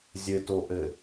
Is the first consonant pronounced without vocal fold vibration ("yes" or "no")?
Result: no